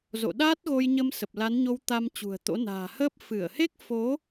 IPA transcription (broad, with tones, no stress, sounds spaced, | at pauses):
z o̰˧˨ ɗ aː˦˥ t̚ ɣ o˧ j ɲ ə˧ m s ə˨˩ p̚ l a˨˦ n ɲ o˧ w t̪ a˧ m t͡ɕ ṳ˨˩ ə̯ t̪ o̰˧˥ n a̤ː˨˩ h əː˦˥ p̚ f ɨ˧˩ ə̯ h e˦˥ k̚ f o˨˦